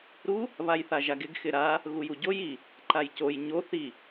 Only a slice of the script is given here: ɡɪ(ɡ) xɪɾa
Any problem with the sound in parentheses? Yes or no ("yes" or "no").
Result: no